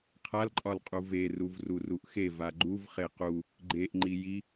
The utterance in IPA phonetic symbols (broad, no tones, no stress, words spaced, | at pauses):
qʰalǃʼɒlqʼu ve ruvruruʔxev aɡ͡ǃuv χequ | ɡ͡ǃeʔ ŋ͡ǃiji